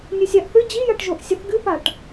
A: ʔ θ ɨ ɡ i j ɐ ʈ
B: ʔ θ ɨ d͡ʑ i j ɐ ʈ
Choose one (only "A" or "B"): B